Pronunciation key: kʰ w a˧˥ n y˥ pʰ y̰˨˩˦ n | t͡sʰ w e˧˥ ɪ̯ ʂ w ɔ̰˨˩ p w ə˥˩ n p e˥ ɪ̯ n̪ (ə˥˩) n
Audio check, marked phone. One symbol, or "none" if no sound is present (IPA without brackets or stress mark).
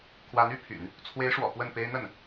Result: ə˥˩